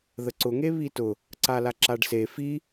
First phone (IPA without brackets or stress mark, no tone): ð